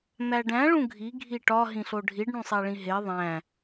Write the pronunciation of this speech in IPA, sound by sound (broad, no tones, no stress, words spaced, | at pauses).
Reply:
n̪æɖæ̃ ɭũɡʱi ɡʱiʈɒ ɦĩɬoɖʱiɖ ɳũsˤæɭĩɦe ðˤæ̃